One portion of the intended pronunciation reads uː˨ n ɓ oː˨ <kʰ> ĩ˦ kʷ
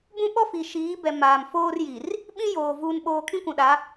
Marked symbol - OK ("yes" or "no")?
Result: yes